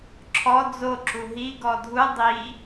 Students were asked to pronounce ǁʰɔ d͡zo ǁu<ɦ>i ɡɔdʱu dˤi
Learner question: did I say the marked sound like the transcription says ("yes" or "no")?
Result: yes